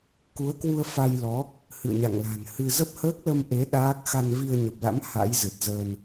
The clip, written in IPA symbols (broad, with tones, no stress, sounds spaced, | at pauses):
k u˨˦ ə̯ k w u˧ ə̯ f a˧ j l ɔ˨˦ | h ɨ̰˧˨ ə̯ ɲ a̰˧˨ ŋ l a̤˨˩ n h ɨ˧ z ə˦˥ p̚ h əː˦˥ k̚ l ə˧ m ʔ e˨˦ ɗ aː˦˥ k̚ x a˧ n v i˧ ə̯ ɲ ə˨˩ p̚ l a̰˧˥ m h a̰˧˥ j z ɨ˨˩ t̚ z əː˧ n